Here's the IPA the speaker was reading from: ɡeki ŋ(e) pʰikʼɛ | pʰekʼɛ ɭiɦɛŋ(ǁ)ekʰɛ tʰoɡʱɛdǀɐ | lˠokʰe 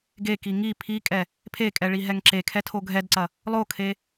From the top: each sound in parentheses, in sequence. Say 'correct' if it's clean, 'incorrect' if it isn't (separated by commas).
incorrect, correct